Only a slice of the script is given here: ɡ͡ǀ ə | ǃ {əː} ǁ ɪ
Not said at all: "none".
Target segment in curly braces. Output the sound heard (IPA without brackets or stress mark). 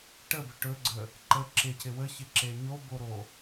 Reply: ə